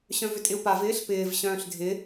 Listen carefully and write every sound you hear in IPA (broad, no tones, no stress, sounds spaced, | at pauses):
ɕ œ̃ v ʏ tʼ ɪ u̯ p a v ɪː ɬ p ɪː v ɕ œ̃ː ɬ dʱ ɪ